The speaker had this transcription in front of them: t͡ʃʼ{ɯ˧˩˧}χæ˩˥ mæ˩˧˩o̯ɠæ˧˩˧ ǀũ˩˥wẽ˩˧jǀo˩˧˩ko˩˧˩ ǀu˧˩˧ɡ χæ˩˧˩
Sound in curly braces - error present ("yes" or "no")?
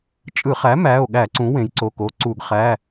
no